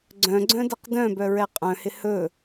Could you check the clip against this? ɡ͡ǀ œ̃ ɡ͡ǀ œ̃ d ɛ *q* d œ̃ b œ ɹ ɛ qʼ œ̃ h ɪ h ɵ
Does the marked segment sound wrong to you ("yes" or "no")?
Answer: no